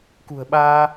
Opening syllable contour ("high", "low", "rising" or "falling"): low